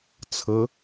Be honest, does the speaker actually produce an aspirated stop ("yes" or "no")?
yes